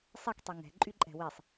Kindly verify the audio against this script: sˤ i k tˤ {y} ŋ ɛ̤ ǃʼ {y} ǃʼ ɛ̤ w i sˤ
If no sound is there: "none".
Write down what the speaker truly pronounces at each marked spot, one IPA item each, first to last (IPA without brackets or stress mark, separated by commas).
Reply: i, y